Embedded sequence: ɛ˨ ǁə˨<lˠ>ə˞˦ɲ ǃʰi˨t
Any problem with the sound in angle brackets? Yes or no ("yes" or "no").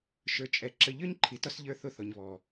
yes